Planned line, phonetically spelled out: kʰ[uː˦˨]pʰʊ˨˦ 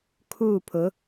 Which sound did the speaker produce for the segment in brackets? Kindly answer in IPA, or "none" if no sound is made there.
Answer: uː˦˨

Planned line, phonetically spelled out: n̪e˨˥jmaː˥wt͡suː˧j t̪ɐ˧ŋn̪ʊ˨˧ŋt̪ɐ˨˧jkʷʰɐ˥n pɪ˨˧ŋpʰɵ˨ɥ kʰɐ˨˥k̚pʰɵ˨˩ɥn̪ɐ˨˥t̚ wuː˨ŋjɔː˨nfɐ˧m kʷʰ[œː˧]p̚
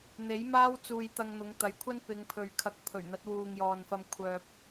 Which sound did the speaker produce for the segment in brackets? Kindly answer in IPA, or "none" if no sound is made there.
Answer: œː˧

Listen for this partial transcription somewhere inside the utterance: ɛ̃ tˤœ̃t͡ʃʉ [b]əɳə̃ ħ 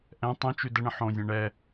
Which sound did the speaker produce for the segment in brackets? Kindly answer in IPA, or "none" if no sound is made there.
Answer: d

